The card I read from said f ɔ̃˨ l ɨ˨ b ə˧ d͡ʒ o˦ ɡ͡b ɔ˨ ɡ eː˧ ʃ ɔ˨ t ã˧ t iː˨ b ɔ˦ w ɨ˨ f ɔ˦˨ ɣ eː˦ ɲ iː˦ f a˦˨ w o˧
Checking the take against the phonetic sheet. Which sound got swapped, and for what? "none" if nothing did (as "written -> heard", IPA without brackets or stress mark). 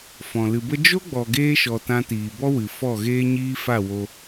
none